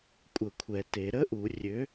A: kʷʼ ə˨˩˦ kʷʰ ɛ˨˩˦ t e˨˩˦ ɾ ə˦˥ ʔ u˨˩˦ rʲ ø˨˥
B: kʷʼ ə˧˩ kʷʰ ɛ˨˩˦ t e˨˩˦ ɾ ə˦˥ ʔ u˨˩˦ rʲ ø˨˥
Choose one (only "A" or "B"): A